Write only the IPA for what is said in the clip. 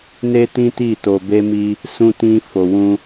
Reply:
n e˦ t ĩ˦ t i˦˨ t o˧ b e˦ m i˦ | s ũ˦ t ĩ˦ f o˧ w ũ˦

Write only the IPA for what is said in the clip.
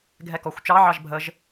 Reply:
ɡʱ ɛ k ɔ xʷ t͡ʃ ɑ ʕ ɑ ʒ bʱ ə ʒ

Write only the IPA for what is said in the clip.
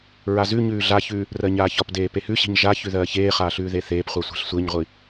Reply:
ɹ a z ʉ ɲ ʉː ɮ a ç ʉː | r ɜ ɲ aː ç ɒ p d eː p e h ʉ ɕ i̤ ɲ ʒ a ç ʉ ð ɜː ç eː χ aː ɬ ʉː ð e θ eː p χʷ a sʷ e̤ ɬ sʷ e ɲ ʁʷ i

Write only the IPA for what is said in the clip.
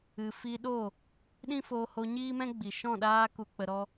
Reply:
ɨ˨ f i˧ ɗ o˦˨ | ɗ ĩ˦ f oː˧ h o˧ ɲ iː˦ m ɛ̃˦ ɡ͡b i˨ ʃ ɔ̃˦˨ ɗ aː˦ k u˧ k͡p ə˧ ɾ ɔ˦

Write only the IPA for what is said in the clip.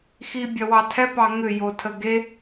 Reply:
x i bʲ œ w ɑ tʰ ɛ p ɑ ŋ ʏ j o tʰ ə ɡ e

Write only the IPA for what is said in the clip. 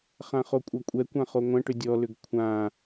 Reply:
χ ã χ o kʷʼ ɐ kʷʼ ɛ kʷ ã χ o ŋʷ ɐ̃ ʈ ʏ dʲ ɔ l ʏ ɡ kʷʰ ã

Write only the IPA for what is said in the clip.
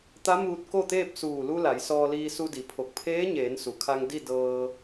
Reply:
t̪ a˧˥ m uː˧ t̚ k o˥˨ t̪ eː˥˨ p̚ s uː˧˩ l u˧ l a˩˧ j s ɔː˧ l iː˧ s u˧ d i˩˧ pʰ o˧˩ k̚ pʰ eː˧˥ ɲ eː˩˧ n s u˩ kʰ a˧ ŋ d i˥˨ d ɤː˧

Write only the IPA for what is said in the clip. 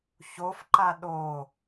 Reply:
ç o f ǃ a ɗ o

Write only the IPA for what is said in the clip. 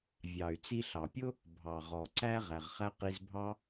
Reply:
vʲ ɑ˩ y̯ t͡s i˧ ɬ ɑ˩ pʲ ʊ˥ | bʱ ɑ˩ ʁ ɔ˩ ǀ æ˥ ʁ æ˩ ʁ χ æ˥ q i˧ z bʱ ɑ˥

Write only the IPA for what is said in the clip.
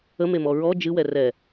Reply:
ə m e m ɔ ɹ ɔ d͡ʒ ɨ w ɛ r ɛ

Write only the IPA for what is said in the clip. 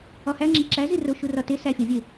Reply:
ɒ h æ ŋ͡ǁ e ǁ æ z i r o ʃ u r ɒ t e s æ fʲ ɒ vʲ e

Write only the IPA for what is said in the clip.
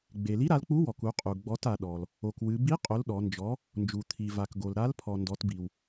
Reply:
ɡ͡b e˩ l i˨˥ ɾ a˩˧ l k͡p u˨˥ w ɔ˩ k u˩˧ qʼ u˩ ɡ͡b ɔ˩˧ t a˩ ɗ ɔ˩ l | o˩ k w ɨ˩˧ b i˨˥ qʼ o˩˧ l ɗ ɔ˩˧ n d͡ʒ ɔ˨˥ | n d͡ʒ u˩ t̪ʰ i˩ v a˩ k ɡ o˩ l ɾ a˨˥ l pʰ ɔ˩ n d ɔ˩˧ t b i˩ w

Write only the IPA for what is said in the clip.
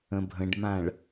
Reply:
ə̃ bʱ ə̃ ɖ m ã ɭ

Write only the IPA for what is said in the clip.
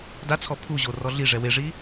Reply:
d a t͡sʰ ɔ pʰ u ʑ o r ɔ ɮ i ʐ ɛ w e ʐ i

